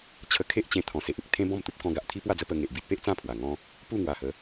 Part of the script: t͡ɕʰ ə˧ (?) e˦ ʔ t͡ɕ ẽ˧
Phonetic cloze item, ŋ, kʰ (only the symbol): kʰ